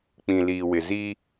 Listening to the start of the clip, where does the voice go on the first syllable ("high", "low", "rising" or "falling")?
low